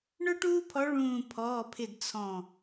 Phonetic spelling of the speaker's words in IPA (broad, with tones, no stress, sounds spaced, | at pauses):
ɳ ʊ˥ ʈ uː˥ pʰ ɔ˧˥ ɭ ũː˧˩ pʰ ɔ˩˧˩ pʰ ɪ˧˩ d t͡sʰ ɔ̃˧˩